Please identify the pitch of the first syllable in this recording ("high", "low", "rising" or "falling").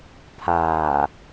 low